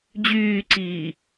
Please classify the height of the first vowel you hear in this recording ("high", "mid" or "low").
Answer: high